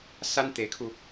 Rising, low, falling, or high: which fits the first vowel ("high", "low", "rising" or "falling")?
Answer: high